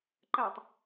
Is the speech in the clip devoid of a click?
no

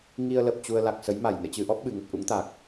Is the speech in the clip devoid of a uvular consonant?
yes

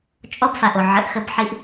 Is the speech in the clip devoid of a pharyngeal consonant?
no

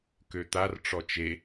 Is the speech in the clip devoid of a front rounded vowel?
no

